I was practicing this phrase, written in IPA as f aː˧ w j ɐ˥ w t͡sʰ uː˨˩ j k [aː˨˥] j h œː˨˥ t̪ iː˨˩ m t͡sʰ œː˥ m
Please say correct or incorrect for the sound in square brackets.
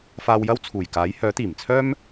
correct